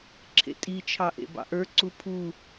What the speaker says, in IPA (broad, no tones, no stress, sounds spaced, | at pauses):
ǁʰ ḛ tʼ i t͡ʃʰ ɑ ʔ ḛ b ɑ̰ ʔ ə˞ ǀ u pʰ u